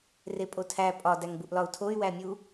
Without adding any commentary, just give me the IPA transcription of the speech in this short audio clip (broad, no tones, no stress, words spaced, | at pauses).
repʼotʰæ pʼɒ dæŋbuʔlɒu̯tʰoy̯ wæmʲu